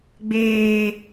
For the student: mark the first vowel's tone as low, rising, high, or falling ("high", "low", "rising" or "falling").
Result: high